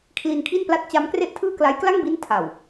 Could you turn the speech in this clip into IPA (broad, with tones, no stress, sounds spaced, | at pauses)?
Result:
kʰ l i˧ n kʰ i˥˩ n p l a˥˩ t̚ t͡ɕ a˦˥ m k r e˥˩ ʔ tʰ ɯː˥˩ k l a˦˥ j k l a˥˩ ŋ b i˦˥ n tʰ a˨˩ w